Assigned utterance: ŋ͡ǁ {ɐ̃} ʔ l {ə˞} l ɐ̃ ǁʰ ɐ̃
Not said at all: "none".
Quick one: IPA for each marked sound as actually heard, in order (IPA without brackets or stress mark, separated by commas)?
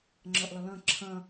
ɐ, ʌ